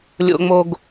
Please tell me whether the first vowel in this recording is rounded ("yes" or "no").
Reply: yes